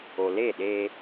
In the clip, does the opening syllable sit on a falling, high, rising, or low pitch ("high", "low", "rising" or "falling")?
low